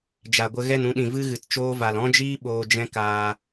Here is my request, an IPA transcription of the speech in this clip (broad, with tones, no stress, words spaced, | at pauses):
d͡ʒa˨ɡʷə˧ ɣɛ˦˨nũ˧ɗĩ˨ vɨ˦ɣɨ˨t t͡ʃoː˦va˨l ɔ̃˦d͡ʒiː˦ ɓoː˧d͡ʒɛ̃˦ kaː˧